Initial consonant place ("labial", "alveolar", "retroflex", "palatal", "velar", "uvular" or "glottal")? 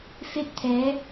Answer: labial